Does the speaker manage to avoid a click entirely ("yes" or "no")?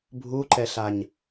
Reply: no